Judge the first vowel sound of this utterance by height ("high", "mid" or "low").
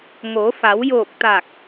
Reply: mid